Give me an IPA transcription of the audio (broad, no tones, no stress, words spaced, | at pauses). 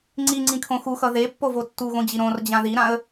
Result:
ŋ͡ǀiŋ͡ǀĩkʰõ xuxʌ ðepːovo tːuɣõd͡ʑi ɾõrd͡ʑã ðiɾãə̯